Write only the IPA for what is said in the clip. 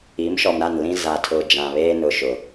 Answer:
i˨˦mʃɔ˨mɾa˦˨nlĩ˦ za˨tʰʊ˨ d͡ʒã˨βeː˦nʊ˨ ʃʊ˨

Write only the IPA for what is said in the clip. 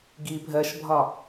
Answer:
ɡi bʱɜʃbʱɒ

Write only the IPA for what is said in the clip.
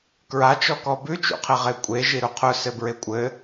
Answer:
kɹat͡ʃɔkɔ bʉt͡ʃṵqʰe ʁekʷʼe ʒiɾuqʰʊsɘ bɹekʷʼɘ

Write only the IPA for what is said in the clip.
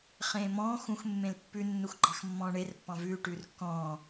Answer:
χẽːmɔ̃ː xũx mːẽlpːʉ nːuxɡ͡ǃɑxmːɔ̃ːɳer pːɑ̃vʉː ʈʉːrkːɔ̃ː

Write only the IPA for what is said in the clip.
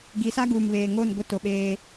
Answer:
ɡi˨˦sa˦ɡuː˨mβeː˨ ŋo˦˨nɡʷɪ˦˨to˨ ɓeː˦

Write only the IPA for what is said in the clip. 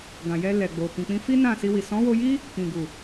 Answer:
ɡã˨jɛ˧ lɛ˨ɡ͡bo˨ kĩ˨k͡pĩ˧fi˦ nã˦˨si˧wi˨ sɔ̃˨˦wo˧ji˦ | kĩ˨ɡu˨

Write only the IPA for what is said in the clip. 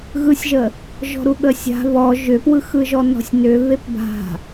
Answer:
ɣɯsʲʒə | ʒɔ̤ɾuɠəsʲa̤ βɔ ʒʏpwɯxɯʒɔ nɔ̤sʲnʏ βepba̤

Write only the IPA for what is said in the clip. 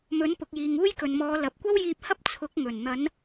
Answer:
mɵ˨˥npʊ˨k̚jiː˨ŋ uː˥jkɵ˨nmɔː˨˧ lɐ˨p̚kʷɐ˥wjiː˧p̚hɐ˥p̚ t͡sʰʊ˨˥k̚ ŋɵ˨˩nn̪ɐ˨˧n

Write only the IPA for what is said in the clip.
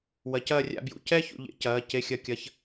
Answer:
wɐ˨˥cɐː˥˧rʲa̰˥˧bjṵ˧˥˧ cɛ˥˧çṵ˩˧ʎḛ˩˧ cɐː˩˧˩ ce˧˥˧xʲɐ˧˥˧kʲɐ˧˥˧ç

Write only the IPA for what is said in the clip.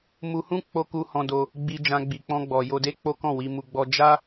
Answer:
mu˧hũ˦ k͡po˦ku˦hɔ̃˧do˧ | ɡ͡bi˧ d͡ʒã˧ɡ͡bi˨k͡pɔ̃˧ɡ͡bɔ˨ jo˧de˦ k͡po˦kɔ̃˦˨ wi˧mu˧ɡ͡bɔ˦ d͡ʒa˦

